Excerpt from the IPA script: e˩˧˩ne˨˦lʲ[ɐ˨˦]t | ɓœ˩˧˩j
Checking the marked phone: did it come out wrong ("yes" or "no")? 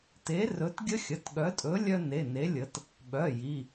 yes